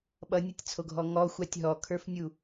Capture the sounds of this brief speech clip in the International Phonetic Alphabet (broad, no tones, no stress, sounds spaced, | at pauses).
ɓ ʌ nʲ ʌ tʲ t͡sʰ o ɡʱ ɔ ŋ ɔ xʷ a tʲ ɦ ɔ kʰ ə˞ f nʲ u